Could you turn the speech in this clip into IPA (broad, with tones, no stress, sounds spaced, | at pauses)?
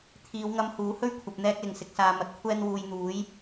t̪ʰ iː˨˧ w ŋ ɐ˧ m h uː˨˥ h ɵ˥ ɥ kʷʰ ɐ˨ p̚ n̪ ɛː˧ k̚ l ɪ˨˩ ŋ s ɪ˨ k̚ s aː˨ m ɐ˨ t̚ kʷʰ ɛː˧ n w uː˨ j n̪ uː˨˥ j